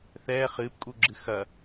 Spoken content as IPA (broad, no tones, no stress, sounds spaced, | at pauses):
θ ɛː χ ɨː p kʼ u ɡ͡ǁ ɨ x ɐ